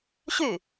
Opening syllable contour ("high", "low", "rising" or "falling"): falling